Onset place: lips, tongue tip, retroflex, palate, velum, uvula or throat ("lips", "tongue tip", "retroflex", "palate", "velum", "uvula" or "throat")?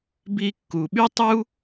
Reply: lips